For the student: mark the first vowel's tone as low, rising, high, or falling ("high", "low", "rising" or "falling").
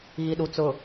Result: low